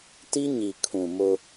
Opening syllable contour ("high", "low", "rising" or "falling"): high